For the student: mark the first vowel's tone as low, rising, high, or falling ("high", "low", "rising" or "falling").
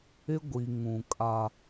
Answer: high